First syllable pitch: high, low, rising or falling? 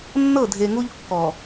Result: falling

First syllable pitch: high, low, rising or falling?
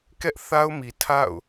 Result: high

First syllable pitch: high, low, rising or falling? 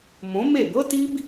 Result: rising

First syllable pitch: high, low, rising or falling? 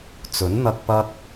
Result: rising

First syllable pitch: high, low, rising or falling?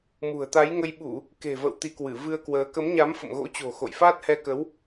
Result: low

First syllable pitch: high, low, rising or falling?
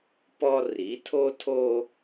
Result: high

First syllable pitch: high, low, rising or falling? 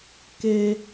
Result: high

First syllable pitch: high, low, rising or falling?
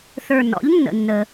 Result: low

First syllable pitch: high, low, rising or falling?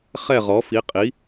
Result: falling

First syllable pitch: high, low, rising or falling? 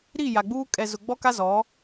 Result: falling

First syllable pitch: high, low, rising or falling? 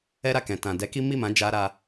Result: high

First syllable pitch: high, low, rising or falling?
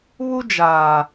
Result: high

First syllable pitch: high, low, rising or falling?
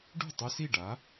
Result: falling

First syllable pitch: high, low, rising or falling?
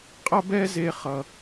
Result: high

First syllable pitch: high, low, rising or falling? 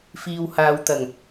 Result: low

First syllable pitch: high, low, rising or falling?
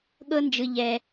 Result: high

